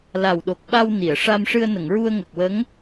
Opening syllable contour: low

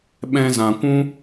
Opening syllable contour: high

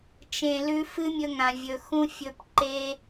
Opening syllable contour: low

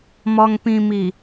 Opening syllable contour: low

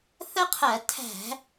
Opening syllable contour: high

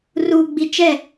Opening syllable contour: low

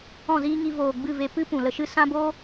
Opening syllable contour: falling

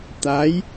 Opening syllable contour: rising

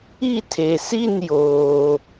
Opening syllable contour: falling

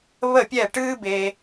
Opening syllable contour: falling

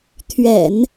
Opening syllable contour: low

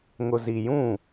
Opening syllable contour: low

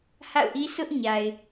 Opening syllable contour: falling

